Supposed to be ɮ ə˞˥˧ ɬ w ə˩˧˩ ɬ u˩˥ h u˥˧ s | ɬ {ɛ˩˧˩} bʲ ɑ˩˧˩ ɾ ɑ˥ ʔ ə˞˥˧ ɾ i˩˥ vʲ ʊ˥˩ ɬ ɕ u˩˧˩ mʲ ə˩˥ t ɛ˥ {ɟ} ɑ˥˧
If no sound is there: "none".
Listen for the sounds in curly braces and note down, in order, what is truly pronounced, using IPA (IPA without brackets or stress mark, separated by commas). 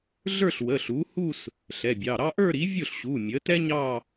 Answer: ɛ˩˧˩, ɲ